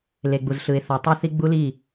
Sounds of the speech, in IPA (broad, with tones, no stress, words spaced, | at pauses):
le˨ɡ͡bu˨zɬɯ˨ɪ̯ θɔ˨tˤu˦θi˦ ɡ͡bu˦li˦˨